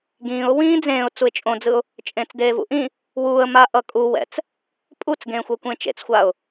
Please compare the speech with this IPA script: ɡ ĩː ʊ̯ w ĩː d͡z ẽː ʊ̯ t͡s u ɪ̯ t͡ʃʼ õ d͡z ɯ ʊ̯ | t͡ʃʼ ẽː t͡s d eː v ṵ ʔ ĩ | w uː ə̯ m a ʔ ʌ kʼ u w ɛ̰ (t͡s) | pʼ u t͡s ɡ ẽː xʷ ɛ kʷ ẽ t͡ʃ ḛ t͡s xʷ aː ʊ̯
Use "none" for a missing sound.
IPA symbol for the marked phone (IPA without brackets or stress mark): t͡s